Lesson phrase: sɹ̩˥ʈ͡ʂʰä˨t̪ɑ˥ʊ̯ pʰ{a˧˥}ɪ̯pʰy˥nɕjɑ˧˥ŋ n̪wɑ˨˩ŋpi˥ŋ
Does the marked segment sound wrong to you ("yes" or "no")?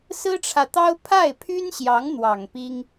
yes